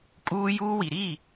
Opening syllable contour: high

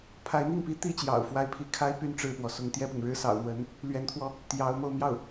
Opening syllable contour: rising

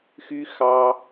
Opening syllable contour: high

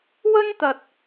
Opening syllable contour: high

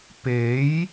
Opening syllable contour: rising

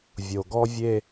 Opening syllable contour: low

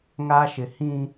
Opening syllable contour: high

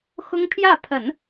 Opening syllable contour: high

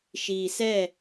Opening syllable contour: low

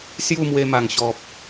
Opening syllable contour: falling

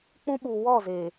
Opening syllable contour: high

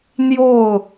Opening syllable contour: falling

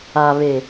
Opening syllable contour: low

